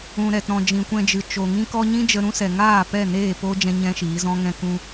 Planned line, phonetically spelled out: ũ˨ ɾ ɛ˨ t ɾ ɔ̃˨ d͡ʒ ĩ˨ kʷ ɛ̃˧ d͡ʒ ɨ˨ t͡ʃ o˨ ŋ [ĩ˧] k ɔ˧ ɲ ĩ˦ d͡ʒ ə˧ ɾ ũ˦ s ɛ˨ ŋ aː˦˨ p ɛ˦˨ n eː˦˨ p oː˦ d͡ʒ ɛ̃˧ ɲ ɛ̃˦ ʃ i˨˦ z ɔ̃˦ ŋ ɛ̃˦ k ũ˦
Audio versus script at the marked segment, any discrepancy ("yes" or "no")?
no